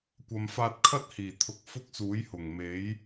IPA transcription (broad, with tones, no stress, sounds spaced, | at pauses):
kʷ ɐ˨ m f aː˧ t̚ kʰ ɐ˥ t̚ h iː˨˩ t̪ʰ ʊ˧ k̚ f ʊ˥ k̚ s uː˨˥ j h ʊ˨˩ ŋ m e˨˥ j